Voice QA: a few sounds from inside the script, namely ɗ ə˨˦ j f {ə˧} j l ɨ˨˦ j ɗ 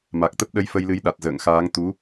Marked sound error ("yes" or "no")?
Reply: no